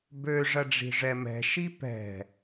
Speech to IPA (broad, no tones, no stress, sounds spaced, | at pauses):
b ø ʐ ɐ ɖ͡ʐ i̤ ʐ ɛ m ɛ̤ ʃ i p ɛ̤